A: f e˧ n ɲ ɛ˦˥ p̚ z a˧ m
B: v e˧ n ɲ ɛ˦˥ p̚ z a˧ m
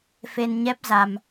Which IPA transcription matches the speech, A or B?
A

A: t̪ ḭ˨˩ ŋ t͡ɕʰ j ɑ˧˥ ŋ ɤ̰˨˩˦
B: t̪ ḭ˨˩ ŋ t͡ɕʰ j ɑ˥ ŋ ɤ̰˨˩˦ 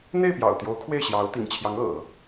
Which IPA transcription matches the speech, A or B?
A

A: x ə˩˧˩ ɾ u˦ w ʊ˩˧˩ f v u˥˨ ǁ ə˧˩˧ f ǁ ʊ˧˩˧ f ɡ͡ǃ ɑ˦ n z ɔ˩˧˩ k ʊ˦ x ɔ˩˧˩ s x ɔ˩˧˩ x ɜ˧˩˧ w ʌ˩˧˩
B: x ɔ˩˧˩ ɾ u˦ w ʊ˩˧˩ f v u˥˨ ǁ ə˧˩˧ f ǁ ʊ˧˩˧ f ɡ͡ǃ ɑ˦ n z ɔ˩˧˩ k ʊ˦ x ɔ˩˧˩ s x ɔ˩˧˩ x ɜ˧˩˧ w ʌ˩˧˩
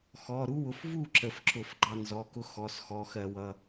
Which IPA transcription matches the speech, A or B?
B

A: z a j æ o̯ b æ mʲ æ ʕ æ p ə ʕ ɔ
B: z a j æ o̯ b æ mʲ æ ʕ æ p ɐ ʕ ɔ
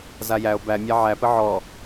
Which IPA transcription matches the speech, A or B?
A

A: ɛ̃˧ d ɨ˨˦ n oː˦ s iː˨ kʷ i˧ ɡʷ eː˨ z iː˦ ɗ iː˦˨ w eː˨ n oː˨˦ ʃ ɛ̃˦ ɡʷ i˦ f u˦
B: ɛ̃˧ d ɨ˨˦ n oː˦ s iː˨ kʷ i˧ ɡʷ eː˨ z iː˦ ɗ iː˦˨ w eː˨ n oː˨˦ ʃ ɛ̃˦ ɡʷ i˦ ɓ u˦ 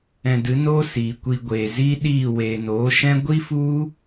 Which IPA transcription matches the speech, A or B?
A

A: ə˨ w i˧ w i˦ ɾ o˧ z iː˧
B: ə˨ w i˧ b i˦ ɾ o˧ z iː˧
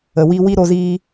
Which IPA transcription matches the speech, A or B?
A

